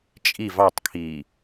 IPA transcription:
t͡ʃʼ i v ɑ tˤ kʰ iː

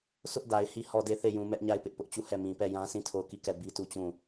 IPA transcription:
s ʊ˦ ʔ d a˨ ɪ̯ h i˦˨ h ɔ˦˨ d e˦˨ θ e˦˨ j ũ˨ m ɛ˦ ʔ ɲ a˦˨ ɪ̯ p ɪ˦ ʔ p ʊ˦ ʔ t͡ɕ u˦˨ h ɛ˦˨ m ĩ˨ p ɛ˦˨ j ã˦ s ĩ˦˨ tʰ o˦˨ ʊ̯ k i˦˨ k ɛ˦˨ b i˦ t u˦˨ t͡ɕ ũ˦˨

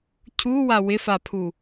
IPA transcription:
cʰ u w a w ɪ f a pʰ u

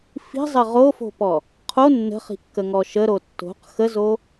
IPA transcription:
f i̤ zˤ ə ʁ o f o̤ p ɔ | qʰ o nː ə̤ χ i̤ kː ə ŋ ɔ ʃ ə ɾ o tː o̤ q x ə z o

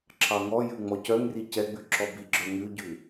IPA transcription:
ǁʰ ɑ ŋ ɔ j ʉ ŋ͡m ɔ c œ ŋ r i c ɛ ɡ͡b ʉ ǁ ɔ b i ɡ͡ǁ œ ŋ ʉ ɟ ʉ

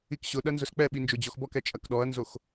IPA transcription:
i k ɕ ʊ ɗ ɐ n z ʊ s k͡p ɛ ɓ i n d͡ʒ o d͡ʑ ɔ x b ɔ k ɛ t͡ʃʼ ɐ k ɗ ɔ ɐ̯ n z o x

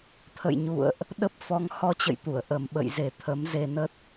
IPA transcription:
t̪ʰ ə̰˧˨ j ɲ ṵ˧˨ ə̯ ʔ | ɗ ə˦˥ p̚ f ɔ˨˦ ŋ h ɔ˧ t͡ɕ ə̰˧˨ j t̪ u˧˩ ə̯ ʔ ə˨˩ m ɓ ə̰˧˨ j z e˨˩ t̪ʰ ə˨˦ m z e˧ n ə˦˥ t̚

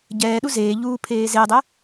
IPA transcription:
ɟ ɛː ɗ u z eː ʎ uː pʰ eː z e dˤ ɛ

